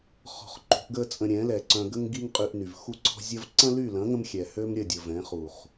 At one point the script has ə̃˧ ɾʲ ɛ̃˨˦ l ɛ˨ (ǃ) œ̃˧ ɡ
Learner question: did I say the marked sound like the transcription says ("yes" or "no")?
no